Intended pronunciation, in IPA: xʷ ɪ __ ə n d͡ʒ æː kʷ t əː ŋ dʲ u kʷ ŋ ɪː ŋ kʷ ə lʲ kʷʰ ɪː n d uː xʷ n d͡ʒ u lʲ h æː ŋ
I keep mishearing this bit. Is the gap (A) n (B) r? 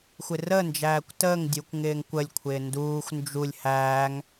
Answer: B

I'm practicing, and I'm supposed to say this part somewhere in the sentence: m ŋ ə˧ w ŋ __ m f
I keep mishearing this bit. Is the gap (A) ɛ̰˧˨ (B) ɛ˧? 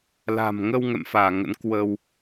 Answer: A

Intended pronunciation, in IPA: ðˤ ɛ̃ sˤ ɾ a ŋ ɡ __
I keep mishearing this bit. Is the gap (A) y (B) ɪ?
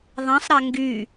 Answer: A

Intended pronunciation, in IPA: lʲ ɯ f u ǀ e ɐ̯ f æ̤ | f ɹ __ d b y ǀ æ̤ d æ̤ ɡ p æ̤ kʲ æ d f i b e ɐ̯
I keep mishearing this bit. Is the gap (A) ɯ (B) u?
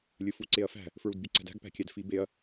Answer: B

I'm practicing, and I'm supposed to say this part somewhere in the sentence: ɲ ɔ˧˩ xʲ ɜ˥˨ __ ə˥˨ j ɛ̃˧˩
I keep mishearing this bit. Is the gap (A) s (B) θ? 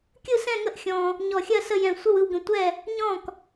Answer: A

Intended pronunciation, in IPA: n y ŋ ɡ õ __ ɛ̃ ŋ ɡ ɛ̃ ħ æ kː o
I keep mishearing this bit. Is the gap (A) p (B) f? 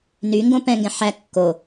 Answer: A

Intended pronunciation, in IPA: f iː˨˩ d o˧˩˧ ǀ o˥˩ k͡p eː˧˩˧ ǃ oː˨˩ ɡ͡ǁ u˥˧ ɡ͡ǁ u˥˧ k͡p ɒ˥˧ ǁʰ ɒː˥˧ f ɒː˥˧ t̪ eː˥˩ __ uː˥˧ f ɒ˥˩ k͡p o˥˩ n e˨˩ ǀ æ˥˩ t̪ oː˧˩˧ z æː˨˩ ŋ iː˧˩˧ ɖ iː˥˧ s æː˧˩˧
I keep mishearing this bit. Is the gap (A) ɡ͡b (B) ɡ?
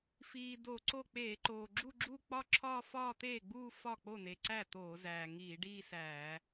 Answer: A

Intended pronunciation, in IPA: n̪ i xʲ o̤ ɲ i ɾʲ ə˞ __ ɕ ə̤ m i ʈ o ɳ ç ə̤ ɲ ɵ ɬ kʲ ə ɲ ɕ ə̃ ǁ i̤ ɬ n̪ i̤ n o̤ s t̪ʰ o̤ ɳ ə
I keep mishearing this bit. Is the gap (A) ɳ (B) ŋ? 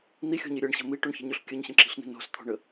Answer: A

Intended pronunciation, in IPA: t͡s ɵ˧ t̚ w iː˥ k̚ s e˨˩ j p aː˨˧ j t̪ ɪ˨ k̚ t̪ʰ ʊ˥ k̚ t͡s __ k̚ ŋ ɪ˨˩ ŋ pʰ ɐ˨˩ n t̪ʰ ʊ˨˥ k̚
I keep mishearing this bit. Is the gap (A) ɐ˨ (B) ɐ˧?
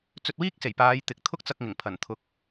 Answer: B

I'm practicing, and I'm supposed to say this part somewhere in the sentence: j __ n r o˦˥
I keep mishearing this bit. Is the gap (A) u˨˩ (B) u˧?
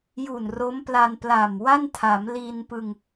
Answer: A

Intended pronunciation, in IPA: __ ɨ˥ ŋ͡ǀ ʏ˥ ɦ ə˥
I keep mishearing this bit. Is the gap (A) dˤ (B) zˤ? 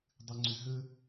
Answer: A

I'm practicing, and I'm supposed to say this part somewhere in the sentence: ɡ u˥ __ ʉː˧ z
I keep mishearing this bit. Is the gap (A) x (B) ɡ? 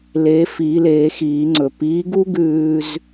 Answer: B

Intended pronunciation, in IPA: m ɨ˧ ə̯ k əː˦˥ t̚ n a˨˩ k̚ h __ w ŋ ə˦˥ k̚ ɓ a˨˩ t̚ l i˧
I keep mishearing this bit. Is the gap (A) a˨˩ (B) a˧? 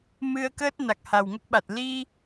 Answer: A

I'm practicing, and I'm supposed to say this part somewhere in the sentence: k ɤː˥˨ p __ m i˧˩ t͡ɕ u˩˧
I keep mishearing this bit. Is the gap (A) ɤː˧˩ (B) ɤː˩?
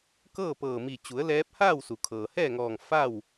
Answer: A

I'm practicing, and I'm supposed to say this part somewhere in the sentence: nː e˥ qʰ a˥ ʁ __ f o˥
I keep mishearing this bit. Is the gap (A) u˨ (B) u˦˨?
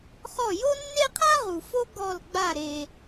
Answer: A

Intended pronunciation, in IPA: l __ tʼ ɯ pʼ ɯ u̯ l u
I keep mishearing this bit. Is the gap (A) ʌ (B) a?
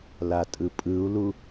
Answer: B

